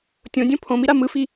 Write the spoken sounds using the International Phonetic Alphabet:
tʲõdʲõ pʰõmiɾa mɯfi

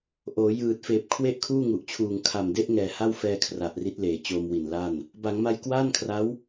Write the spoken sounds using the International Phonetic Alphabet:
ʔoː˩˦ jɯː˨˩t̚feː˨˩p̚ kʰwe˥˩ʔkʰuː˥˩ŋu˨˩ʔt͡ɕʰuː˨˩ŋ kʰa˨˩mde˦˥ʔ ŋɛː˨˩ha˥˩wfɛː˧ kʰra˨˩ʔri˦˥t̚leː˨˩ t͡ɕoː˧mwi˨˩n la˥˩n | ba˩˦ŋma˧j kwaː˥˩nkʰra˦˥w

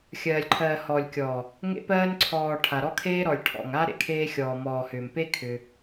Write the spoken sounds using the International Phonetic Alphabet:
xʲɜː˨lʲǃʰɜː˨hɔː˨lʲkʲɔː˨ | ŋḛ˧pɜː˧nǀʰɔː˨ ʈʰa˨ɾɔ˦kʰeː˦ ɾɔ˨lʲʈʰɔ̰˨ŋa˦ ɾḛ˨kʰeː˧xʲɔː˨ mɔː˨hʏː˨mpe˦ kʰʏ˧

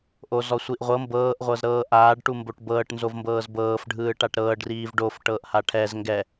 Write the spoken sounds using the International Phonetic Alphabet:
ʔozɔsʷiʔʁʷɤ mbɤːʔ ʁʷɤzɾɤːʔaːɖ ʈumboʈbɤːʈ nzovmbɤːzbɤːf ɖʱɯːʈaʈɾɤːɖ riːvɖof ʈɤːʔhaʈʰɛz ŋɡɛ

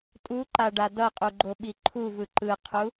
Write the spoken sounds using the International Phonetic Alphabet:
tʼuǃaɖa dʌqʼuɡ͡ǃoɓi ǃʰuvɯ ǃɯqʰu

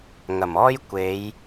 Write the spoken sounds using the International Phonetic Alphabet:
ŋɐ˨˩mɔː˥j kʷe˨˧j

